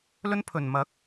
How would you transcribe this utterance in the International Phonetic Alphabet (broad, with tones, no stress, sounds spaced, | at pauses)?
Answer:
l ɵ˥ n pʰ ɵ˨˩ n m ɐ˨˥ k̚